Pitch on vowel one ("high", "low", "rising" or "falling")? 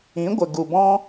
rising